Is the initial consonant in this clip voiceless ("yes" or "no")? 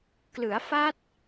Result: yes